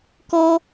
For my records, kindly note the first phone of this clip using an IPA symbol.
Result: k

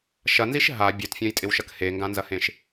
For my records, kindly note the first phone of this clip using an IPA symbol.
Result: ʃ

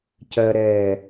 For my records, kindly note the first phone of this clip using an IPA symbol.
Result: c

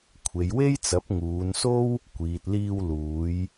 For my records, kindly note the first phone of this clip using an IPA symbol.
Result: kʷʰ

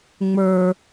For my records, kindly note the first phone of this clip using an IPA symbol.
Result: ŋ͡m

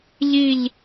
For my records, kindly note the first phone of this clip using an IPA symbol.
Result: ʎ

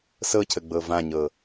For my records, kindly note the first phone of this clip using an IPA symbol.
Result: s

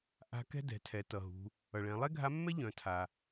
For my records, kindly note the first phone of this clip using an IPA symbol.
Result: ʔ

